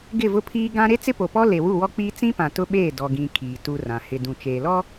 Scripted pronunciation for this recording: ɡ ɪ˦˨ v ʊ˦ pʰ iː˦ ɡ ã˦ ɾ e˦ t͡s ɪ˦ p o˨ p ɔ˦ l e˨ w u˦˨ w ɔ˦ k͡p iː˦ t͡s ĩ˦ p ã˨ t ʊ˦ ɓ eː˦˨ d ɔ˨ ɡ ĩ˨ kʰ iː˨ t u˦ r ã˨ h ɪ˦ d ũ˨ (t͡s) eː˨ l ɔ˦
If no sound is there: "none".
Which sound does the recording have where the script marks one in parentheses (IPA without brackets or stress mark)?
t͡ʃ